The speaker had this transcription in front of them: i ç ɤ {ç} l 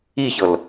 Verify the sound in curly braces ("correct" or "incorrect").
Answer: incorrect